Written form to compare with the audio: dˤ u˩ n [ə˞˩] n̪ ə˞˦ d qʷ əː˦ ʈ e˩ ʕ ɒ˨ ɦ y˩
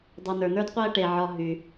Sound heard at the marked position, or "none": ə˞˩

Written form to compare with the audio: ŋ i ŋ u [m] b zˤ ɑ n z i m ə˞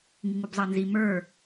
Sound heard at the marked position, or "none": none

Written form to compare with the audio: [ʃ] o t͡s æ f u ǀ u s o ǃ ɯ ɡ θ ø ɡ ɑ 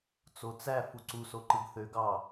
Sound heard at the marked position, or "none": t͡s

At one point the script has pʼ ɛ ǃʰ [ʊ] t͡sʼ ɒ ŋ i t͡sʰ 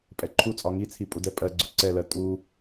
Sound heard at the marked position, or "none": u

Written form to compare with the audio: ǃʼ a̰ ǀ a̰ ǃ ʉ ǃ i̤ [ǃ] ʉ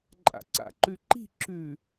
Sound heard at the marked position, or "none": ǁ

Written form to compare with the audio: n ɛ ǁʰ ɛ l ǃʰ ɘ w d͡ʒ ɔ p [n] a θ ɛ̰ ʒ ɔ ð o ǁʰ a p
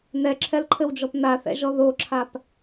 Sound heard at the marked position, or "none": n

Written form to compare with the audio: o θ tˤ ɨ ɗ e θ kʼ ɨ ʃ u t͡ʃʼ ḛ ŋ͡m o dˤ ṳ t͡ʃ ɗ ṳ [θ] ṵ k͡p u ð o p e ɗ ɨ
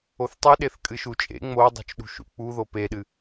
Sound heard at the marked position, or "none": ʃ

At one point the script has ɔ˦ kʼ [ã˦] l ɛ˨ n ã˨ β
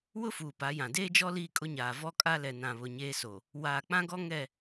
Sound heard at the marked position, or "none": a˦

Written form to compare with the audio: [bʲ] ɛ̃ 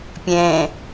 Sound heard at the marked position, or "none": pʲ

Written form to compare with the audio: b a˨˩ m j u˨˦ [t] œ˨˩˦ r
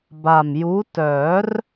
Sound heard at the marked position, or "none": t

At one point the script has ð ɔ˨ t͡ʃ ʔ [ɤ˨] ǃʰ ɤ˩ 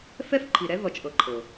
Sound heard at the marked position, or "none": ɤ˨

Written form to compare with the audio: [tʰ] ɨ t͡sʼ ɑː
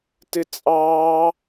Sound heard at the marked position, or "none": t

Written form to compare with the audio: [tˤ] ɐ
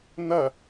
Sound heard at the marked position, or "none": n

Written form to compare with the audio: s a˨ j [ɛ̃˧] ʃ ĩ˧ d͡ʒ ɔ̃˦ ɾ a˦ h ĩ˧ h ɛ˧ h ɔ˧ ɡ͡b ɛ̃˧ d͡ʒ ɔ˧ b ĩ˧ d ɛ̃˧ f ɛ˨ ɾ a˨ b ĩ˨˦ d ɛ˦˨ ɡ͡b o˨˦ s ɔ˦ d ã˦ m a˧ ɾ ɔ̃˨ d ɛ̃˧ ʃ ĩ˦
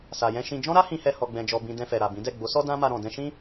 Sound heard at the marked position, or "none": ɛ̃˧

